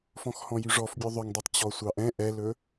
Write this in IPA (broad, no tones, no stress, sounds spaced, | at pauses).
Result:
f ɔ̃ x h ɔ̃ j y ʐ ɔ f bʲ u ðˤ ɵ ŋ dˤ i tˤ t͡ɕ ɔ sʷ ɑ ʔ ɛ̃ ʔ ɛ l ɵ